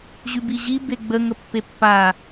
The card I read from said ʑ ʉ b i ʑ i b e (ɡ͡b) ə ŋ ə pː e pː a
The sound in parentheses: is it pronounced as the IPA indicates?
yes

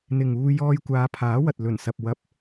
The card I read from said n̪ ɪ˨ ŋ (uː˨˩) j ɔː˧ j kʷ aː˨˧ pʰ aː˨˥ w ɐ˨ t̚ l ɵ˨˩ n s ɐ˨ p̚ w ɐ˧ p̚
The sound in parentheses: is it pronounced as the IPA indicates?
no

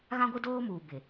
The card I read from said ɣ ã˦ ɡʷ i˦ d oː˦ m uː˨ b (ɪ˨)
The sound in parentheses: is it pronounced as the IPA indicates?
yes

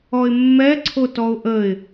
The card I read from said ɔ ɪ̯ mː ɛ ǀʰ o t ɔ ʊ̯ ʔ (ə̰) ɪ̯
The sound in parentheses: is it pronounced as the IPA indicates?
no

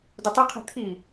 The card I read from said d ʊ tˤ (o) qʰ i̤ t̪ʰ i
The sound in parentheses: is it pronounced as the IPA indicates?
yes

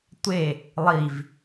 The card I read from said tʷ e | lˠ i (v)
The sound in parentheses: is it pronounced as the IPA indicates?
yes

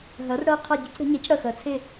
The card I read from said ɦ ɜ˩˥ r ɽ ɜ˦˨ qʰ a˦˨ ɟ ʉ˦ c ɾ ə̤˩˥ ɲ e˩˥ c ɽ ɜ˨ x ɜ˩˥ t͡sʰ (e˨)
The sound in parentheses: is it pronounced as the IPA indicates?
no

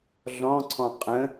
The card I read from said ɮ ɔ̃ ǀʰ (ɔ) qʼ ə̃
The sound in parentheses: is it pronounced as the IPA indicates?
no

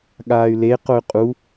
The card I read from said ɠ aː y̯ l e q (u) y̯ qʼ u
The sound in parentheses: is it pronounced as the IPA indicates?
no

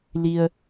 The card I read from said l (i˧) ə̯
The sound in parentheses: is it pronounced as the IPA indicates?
yes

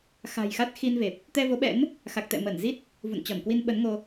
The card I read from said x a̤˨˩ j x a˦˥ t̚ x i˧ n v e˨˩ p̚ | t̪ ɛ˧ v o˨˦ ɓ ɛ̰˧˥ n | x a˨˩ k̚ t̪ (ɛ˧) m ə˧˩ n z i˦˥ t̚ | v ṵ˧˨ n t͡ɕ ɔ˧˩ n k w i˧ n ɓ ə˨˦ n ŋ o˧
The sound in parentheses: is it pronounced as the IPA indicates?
no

